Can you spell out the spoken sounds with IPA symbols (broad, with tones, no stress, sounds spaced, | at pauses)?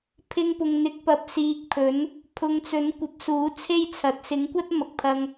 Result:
pʰ ɪ˧ ŋ p ʊ˨ ŋ n̪ ɪ˨˥ k̚ p ɐ˨ p̚ s iː˨ k̚ pʰ ɵ˨˥ n | pʰ ʊ˨ ŋ t͡s ɵ˨˥ n kʷ ɐ˨˥ p̚ s uː˨˥ t͡sʰ e˥ j t͡sʰ ɐ˨˥ t̚ s ɪ˨˥ ŋ kʷ ɐ˥ t̚ m ɐ˨ k̚ pʰ ɐ˧ ŋ